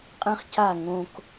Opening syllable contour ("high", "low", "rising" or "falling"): high